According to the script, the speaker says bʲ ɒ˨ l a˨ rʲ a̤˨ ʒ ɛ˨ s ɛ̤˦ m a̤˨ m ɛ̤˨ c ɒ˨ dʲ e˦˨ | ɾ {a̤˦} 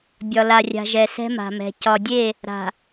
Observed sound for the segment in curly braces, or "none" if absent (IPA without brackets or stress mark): a̤˨